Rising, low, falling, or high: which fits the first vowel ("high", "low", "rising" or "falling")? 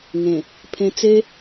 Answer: low